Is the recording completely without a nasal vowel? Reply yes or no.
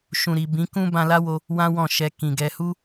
no